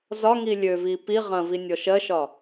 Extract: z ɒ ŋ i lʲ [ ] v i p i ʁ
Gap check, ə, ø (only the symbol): ø